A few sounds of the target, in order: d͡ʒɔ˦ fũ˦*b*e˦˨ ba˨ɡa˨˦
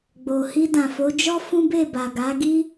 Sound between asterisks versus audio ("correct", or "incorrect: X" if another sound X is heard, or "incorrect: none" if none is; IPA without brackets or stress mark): correct